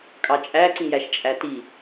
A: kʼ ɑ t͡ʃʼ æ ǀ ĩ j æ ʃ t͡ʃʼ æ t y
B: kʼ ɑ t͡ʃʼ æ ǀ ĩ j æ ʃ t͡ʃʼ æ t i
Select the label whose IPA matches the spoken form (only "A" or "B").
B